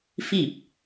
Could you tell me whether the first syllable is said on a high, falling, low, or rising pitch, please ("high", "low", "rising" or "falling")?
falling